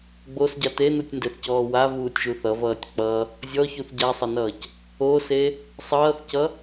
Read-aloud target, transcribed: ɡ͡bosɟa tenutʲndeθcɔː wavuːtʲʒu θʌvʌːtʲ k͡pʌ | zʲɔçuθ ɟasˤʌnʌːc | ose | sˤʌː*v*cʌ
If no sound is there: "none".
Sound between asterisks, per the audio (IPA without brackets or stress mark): θ